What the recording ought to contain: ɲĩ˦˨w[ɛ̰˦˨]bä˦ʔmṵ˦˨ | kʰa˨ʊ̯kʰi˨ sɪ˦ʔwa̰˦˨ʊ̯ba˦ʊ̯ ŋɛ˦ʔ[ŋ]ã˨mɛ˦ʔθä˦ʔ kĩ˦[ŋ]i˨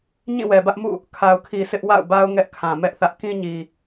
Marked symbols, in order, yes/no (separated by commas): no, no, no